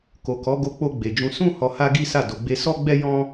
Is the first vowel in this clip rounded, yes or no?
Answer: yes